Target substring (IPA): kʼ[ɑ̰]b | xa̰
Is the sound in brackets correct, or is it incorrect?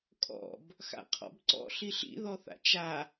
incorrect